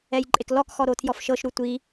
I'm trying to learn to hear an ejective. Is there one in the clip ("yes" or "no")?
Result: yes